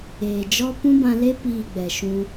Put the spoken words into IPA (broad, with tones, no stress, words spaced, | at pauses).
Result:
eː˨d͡ʒɔ˦ pũ˦bã˧le˦ piː˦˨ɡ͡bɛ˨ʃũ˧